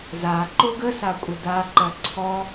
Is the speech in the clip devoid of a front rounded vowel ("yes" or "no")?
yes